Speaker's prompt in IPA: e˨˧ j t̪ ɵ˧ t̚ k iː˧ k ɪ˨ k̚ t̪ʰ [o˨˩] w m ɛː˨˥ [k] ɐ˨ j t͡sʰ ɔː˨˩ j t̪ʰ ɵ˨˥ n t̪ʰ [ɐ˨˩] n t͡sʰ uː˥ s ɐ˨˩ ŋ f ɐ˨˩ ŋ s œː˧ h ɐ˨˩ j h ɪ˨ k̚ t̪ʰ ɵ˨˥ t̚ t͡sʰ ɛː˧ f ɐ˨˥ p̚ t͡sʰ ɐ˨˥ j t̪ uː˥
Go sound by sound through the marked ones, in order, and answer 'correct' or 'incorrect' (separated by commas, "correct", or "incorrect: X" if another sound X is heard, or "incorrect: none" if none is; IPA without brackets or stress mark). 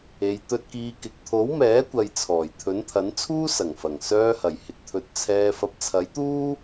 incorrect: o˨˥, incorrect: kʷ, incorrect: ɐ˨˥